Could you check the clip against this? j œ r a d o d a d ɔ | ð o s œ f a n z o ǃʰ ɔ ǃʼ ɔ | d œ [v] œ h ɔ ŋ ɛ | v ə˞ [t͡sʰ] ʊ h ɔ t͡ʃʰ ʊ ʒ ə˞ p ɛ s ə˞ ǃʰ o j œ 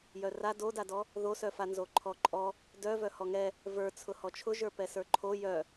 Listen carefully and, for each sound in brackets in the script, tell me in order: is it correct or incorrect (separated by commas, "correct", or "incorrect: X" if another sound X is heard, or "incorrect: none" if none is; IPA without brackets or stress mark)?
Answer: correct, correct